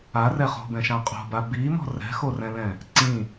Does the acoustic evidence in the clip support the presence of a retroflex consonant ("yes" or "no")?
no